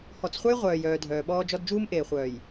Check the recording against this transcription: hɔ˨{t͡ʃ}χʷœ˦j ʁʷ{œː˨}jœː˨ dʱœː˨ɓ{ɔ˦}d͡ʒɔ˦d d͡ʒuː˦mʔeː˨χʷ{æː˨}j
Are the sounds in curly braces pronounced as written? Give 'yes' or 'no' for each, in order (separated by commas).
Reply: no, yes, no, no